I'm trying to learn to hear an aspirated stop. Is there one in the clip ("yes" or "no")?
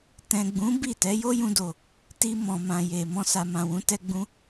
no